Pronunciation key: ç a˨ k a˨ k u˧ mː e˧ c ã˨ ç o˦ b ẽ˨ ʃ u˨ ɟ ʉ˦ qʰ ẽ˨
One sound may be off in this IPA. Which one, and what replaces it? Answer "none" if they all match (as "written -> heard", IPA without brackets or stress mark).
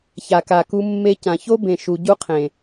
ʉ˦ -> u˦